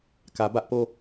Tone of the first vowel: low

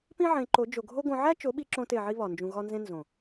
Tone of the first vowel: high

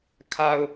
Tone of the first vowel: low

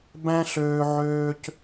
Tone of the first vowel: high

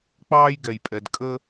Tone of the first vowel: high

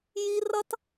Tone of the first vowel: high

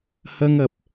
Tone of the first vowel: high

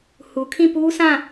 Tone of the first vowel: low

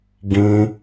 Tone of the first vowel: high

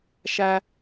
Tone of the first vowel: high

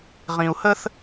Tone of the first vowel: low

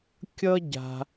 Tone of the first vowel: high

